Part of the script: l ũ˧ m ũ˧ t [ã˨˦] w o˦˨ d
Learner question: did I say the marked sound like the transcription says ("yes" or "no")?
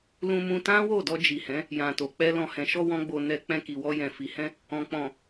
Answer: no